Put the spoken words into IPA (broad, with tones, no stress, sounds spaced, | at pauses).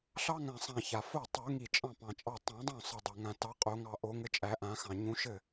ɬ ɑ˥ ŋ ã˧˩ sˤ ã˧˩ ç a˩ f o˥˩ tˤ u˨˩˦ ŋ i˧˩ t͡ʃʼ ɑ̃˥˩ p ɑ̃˩ t͡ʃʼ ɑ˧˩ tˤ ũ˨˩˦ dˤ õ˥˩ sˤ ɘ˧˩ dˤ o˩ ŋ ã˧˩ t ɑ˨˦ qʼ o˨˩˦ ŋ ɑ˧˩ ʔ o˨˩˦ ŋ ɘ˨˦ t͡ʃʼ æ˨˩˦ ʔ ã˨˩˦ x ɑ̃˩ ɲ ũ˨˦ ʃ ɘ˥˩